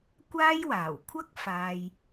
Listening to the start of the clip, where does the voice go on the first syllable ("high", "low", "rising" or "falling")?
high